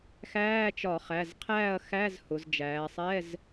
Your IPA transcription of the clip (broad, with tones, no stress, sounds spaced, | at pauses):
x æː˧˥˧ t͡ʃ ɒ˧˩˧ χ æ˩˧˩ z qʰ æː˥˨ ɐ̯ x æ˧˥˧ z h ʊ˩˧ z d͡ʒ æː˩˧ sˤ ɛ˧˥˧ z